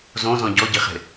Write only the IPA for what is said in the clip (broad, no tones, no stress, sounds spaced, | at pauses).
z õ z ɔ̃ ɟ ɔ ɟ i χ e̤